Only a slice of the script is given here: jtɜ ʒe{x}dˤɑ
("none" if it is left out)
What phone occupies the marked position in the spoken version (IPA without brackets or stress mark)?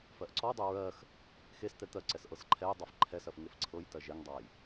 ŋ